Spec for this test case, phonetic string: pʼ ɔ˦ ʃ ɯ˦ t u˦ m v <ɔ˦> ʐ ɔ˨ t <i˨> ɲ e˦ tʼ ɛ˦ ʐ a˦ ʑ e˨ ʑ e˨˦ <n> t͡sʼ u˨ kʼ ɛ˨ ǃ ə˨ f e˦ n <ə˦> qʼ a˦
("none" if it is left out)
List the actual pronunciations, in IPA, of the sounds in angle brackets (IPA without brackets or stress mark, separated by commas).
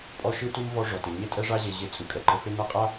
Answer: ɔ˦, e˨, none, a˦